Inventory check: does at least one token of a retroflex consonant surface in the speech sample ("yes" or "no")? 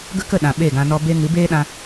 no